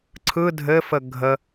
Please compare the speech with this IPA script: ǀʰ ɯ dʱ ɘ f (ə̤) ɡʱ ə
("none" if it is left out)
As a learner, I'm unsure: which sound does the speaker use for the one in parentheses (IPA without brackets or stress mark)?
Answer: ə